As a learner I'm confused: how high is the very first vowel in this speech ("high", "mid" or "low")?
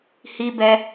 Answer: high